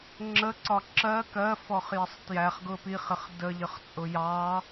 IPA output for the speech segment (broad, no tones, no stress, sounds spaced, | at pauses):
ŋ͡ǁ ə ǀ ɒ ǁ ɜ k ɜ f ɔ χ j ɪ sˤ t j æ χ ɡ ʊ p i χ ɪ χ d ə ʎ ə χ t͡sʼ ʊ j ɑ